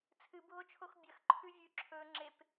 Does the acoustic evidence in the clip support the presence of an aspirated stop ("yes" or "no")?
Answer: yes